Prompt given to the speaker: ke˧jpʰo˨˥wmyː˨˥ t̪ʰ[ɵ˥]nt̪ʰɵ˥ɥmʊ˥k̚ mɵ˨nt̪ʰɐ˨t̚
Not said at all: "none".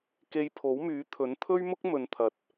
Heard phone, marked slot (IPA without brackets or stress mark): ɵ˨˥